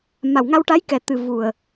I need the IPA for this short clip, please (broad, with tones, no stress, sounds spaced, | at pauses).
m a˨˩ w ŋ a˧ w ʈ a˧˥ j k ɛ˨˩ t̪ ɨ˨˩ v u˨˩ ə̯